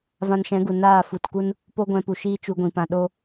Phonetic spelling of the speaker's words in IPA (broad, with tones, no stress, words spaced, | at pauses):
vã˧nʃɛ̃˨˦ɡu˨ naː˦˨ fu˨tku˦n | po˦ɡʷɛ̃˧pu˨ʃiː˦ t͡ʃu˧ɡʷĩ˨pã˧ ɗo˦